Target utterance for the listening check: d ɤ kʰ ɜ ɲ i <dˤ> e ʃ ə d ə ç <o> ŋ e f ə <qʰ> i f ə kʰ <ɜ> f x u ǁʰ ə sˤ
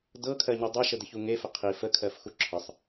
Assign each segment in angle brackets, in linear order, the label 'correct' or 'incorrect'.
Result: correct, incorrect: u, correct, correct

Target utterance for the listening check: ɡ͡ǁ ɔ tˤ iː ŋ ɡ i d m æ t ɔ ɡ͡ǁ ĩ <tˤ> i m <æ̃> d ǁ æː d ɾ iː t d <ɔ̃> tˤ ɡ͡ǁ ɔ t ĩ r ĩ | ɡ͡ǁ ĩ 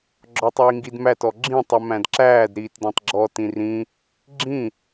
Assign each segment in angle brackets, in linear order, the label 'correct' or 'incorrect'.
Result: correct, correct, correct

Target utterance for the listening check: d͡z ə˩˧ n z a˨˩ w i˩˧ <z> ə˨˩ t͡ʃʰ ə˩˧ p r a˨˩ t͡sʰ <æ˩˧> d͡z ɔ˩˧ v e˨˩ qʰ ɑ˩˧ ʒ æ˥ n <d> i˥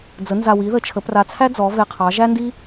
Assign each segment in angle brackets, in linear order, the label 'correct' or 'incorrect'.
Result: incorrect: ð, incorrect: æ˥, correct

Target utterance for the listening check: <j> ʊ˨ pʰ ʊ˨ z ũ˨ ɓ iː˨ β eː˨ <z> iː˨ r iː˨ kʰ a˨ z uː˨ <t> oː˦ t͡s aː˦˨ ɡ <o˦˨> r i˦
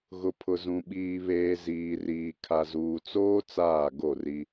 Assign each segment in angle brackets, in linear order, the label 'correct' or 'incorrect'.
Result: incorrect: ɣ, correct, incorrect: t͡s, correct

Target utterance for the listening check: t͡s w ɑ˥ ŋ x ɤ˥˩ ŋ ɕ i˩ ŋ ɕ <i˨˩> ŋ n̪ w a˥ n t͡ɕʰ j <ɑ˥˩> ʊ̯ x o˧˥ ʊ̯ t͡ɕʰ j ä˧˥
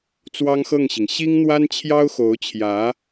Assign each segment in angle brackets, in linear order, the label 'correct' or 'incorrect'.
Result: incorrect: i˥, incorrect: ɑ˥

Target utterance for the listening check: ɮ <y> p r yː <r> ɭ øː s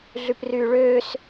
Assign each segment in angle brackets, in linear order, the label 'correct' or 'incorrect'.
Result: correct, incorrect: none

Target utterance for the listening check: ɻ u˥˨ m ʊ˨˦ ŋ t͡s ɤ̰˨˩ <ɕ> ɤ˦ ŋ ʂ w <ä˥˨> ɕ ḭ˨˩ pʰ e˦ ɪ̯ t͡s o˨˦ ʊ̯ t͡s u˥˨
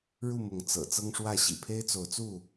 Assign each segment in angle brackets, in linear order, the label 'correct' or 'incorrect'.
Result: incorrect: t͡s, correct

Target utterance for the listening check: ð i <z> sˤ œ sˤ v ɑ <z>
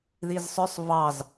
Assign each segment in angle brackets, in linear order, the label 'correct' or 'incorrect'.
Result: correct, correct

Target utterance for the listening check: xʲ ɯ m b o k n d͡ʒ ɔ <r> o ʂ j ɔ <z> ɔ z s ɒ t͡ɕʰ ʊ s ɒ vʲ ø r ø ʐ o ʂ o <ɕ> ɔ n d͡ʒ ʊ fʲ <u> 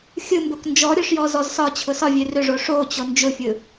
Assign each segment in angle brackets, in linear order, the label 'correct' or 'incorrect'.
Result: incorrect: ɾʲ, correct, incorrect: t͡ɕ, incorrect: ɯ

